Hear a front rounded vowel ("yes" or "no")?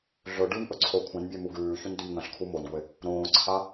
no